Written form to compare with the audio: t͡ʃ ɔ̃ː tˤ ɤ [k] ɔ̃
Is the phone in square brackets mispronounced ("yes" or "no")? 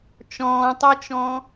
yes